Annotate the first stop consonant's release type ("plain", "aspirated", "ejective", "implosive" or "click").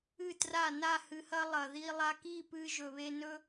plain